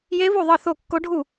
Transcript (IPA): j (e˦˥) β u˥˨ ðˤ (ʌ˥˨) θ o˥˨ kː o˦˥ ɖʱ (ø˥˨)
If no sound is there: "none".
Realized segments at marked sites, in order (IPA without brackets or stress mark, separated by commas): e˦˥, ʌ˥˨, u˥˨